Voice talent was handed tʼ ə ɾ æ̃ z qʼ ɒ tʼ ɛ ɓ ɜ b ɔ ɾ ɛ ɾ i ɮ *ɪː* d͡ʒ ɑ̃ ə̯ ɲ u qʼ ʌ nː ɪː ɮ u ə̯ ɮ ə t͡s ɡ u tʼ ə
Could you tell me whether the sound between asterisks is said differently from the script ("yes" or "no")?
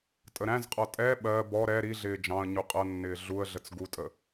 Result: no